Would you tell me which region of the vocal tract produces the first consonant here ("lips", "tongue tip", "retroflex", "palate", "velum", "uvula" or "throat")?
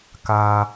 velum